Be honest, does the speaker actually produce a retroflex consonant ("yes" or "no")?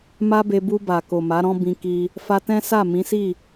no